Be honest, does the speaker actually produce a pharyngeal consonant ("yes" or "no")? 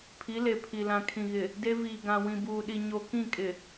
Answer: no